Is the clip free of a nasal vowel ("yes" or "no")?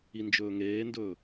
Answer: yes